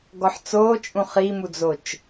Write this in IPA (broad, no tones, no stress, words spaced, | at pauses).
ɡɔħt͡soːt͡ʃʼũ χimud͡zot͡ʃ